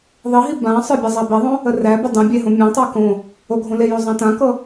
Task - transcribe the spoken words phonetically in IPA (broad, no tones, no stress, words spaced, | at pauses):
ðˤiɦi bãsˤə˞ bʲazˤæbeðˤõ | əræbə dˤə̃ bʲeɦõ mʲãtˤæ kõ | oɡʱõlejo zˤãtãkɤ